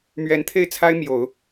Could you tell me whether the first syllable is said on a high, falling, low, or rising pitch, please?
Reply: rising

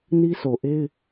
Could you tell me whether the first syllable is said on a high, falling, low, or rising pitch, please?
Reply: high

